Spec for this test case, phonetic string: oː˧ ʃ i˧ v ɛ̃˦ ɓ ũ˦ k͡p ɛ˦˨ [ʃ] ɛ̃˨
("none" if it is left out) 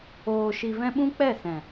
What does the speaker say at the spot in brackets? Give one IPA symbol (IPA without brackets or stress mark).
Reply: s